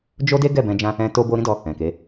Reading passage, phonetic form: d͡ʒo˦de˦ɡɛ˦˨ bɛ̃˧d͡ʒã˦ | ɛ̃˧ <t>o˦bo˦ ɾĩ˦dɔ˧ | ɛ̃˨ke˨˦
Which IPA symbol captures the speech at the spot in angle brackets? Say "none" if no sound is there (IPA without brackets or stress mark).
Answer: t